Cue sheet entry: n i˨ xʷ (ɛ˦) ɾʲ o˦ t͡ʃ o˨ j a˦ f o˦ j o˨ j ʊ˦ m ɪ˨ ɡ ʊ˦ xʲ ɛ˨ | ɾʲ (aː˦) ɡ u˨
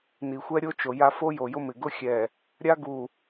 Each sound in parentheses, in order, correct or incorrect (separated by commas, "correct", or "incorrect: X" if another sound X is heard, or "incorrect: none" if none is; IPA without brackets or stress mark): correct, incorrect: a˦